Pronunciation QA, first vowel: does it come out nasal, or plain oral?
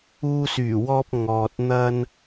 oral